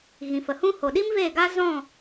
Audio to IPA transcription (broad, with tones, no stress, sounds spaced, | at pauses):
ɣ ĩ˨ f ə˨ h ũ˦ h o˨ ɗ i˦ m v e˦˨ ɡ a˦ z ɔ̃˦˨